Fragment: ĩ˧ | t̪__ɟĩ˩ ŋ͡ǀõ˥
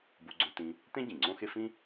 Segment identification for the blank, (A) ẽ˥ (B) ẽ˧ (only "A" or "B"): A